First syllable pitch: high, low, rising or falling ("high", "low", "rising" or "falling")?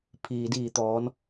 low